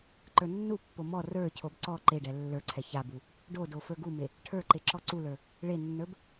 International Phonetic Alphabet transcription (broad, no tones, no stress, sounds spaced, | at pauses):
ǃ ə˞ nː u pː o m ɔ r ə˞ cʰ o b ǀ ɔ ǃ e ɖ ɛ lː ə˞ ǀʰ ɛ ç a b u | ɖ o d o f ə˞ ɡ u m e | ʈʰ ə˞ ǃ e ǁ ɔ ǀ u l ə˞ | ɭ e nː ə˞ b